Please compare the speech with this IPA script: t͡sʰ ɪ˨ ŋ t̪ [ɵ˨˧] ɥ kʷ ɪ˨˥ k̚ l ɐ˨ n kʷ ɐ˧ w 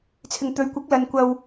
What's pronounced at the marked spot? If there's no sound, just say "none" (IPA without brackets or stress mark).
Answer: ɵ˨˧